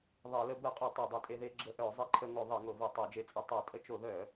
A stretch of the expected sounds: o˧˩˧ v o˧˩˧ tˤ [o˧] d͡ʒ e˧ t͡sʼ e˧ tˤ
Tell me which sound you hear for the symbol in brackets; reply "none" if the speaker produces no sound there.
o˧˩˧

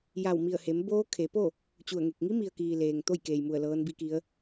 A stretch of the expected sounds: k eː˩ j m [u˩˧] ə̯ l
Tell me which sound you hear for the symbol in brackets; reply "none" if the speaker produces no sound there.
u˧˩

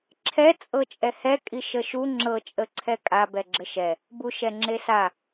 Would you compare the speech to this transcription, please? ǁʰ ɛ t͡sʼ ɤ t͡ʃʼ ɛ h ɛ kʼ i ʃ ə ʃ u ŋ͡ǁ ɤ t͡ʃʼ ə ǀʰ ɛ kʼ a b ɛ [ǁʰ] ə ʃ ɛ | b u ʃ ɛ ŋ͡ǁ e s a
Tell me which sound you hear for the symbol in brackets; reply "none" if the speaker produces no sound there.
ɡ͡ǁ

